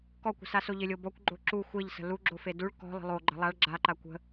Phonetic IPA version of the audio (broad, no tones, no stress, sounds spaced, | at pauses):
k ɔ kʷ ə̤ s a s o ʎ ɪ lʲ o b ɔ kʷ ɡ͡ǃ o ǁ u xʷ e ʎ s ə̤ l u ɡ͡ǁ o f e d u ɭ k ɔ̤ lˠ ə̤ lˠ o ɡ͡ǃ ə̤ lˠ a ɭ ɡ͡ǁ a ǃ a kʷ ə̤